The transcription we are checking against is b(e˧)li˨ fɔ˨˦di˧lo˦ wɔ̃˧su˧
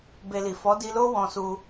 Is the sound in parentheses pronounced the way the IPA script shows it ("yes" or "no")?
yes